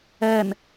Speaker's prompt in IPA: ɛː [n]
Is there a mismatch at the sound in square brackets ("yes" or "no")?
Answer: no